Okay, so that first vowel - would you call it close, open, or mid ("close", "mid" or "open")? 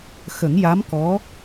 mid